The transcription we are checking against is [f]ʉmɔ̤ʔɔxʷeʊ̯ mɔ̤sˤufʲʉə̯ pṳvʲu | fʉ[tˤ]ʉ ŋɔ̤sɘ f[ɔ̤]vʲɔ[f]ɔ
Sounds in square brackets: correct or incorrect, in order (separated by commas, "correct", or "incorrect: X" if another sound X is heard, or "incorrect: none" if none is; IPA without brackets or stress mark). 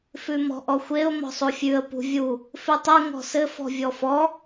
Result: correct, correct, correct, correct